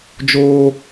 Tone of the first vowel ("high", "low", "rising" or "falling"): high